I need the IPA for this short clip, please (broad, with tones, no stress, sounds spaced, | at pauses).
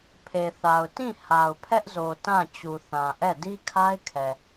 pʰ e˨ θ a˨ ʊ̯ t ĩ˦˨ h a˨ ʊ̯ pʰ ɛ˦ ʔ z o˨ t ã˦˨ t͡ɕ u˨ θ ã˨ ʔ ɛ˦˨ d i˦ kʰ a˦ ɪ̯ kʰ ɛ˨